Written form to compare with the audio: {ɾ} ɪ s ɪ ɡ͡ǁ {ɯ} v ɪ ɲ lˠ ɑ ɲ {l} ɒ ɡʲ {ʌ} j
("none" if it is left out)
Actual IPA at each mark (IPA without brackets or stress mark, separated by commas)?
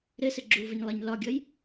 ɾ, u, l, ʌ